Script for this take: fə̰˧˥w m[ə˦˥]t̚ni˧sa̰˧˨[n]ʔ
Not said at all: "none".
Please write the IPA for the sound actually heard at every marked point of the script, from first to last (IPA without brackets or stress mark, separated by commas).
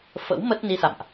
ə˦˥, m